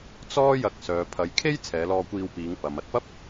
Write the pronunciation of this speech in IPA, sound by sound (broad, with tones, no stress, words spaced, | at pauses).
t͡sɔː˥jɐ˧k̚ sœː˨pʰɐ˨˧jkʰe˥j t͡sʰɛː˨˧lɔː˧kʷiː˧wpiː˨˧ŋ pɐ˨mɐ˨t̚pɐ˥p̚